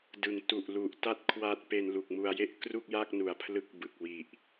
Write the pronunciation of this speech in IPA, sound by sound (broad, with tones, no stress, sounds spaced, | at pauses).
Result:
d ɯ˩˦ ŋ t u˨˩ ʔ l u˨˩ ʔ t a˥˩ t̚ kʰ w a˦˥ t̚ p e˧ n l u˨˩ k̚ m u˧ a̯ j e˥˩ ʔ k r u˥˩ k̚ j a˥˩ k̚ n u˨˩ a̯ pʰ l ɯ˦˥ k̚ b ɯ˨˩ k̚ w i˨˩ ʔ